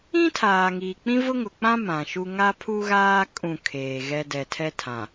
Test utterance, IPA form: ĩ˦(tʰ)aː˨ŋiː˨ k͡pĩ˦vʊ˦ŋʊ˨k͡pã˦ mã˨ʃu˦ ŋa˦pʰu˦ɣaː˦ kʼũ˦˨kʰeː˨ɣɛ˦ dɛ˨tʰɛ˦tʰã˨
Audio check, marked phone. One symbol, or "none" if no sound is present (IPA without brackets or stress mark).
tʰ